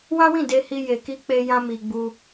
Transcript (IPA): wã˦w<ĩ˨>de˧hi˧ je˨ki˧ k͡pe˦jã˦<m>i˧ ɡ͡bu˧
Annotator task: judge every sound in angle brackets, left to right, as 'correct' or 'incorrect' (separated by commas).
incorrect, correct